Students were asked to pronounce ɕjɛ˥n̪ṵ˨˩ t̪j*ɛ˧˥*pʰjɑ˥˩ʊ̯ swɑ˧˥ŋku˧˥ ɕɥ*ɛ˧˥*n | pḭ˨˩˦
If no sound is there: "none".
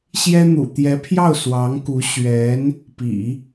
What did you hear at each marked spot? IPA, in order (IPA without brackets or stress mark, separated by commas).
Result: ɛ˧˥, ɛ˧˥